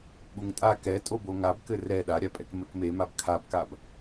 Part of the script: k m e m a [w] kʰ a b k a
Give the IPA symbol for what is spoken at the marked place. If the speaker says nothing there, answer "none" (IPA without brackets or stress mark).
b